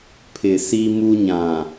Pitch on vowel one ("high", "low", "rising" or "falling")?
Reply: low